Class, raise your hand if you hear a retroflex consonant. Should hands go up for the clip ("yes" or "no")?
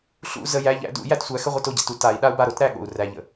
no